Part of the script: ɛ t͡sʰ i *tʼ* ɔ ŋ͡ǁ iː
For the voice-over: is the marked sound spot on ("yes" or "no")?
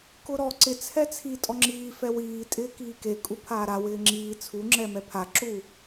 yes